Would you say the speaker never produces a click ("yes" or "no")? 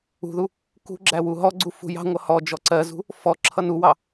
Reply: no